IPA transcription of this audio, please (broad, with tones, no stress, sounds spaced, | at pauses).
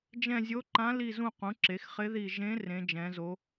d͡ʒ ɛ̃˦˨ zʲ o˧˥ ǃ ã˧˥ l i˦˨ z ũ˦˨ q ũ˩˥ ǁ e˩˥ x χ ɪ˧˥ ð i˦˨ ʒ ẽ˧˥ r ẽ˧˥ d͡ʒ ɛ̃˧˥ z o˧˥